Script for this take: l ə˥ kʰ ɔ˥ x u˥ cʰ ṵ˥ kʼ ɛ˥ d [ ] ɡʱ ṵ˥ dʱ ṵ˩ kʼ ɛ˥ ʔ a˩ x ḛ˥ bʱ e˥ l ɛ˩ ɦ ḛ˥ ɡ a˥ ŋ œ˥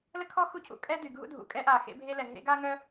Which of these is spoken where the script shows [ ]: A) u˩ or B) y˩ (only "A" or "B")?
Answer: B